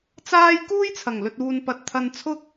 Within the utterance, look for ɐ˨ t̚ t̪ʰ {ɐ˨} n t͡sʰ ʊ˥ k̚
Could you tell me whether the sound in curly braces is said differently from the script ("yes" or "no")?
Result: yes